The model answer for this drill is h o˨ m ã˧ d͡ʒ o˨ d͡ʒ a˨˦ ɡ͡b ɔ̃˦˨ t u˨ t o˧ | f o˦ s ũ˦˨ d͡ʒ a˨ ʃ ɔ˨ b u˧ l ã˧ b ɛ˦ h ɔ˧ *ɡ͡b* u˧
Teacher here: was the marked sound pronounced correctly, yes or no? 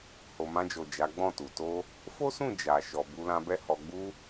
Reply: yes